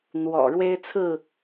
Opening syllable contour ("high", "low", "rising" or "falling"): low